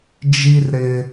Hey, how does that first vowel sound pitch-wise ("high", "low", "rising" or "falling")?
high